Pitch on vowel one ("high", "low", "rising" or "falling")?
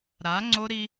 rising